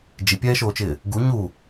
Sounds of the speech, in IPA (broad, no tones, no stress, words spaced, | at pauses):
d͡ʒipʲɛːʃoːt͡ʃɪː | ɡu ɲu